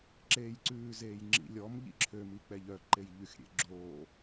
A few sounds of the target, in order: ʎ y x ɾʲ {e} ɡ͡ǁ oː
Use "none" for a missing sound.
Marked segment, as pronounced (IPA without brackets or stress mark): ḛ